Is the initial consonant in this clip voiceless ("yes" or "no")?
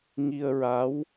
no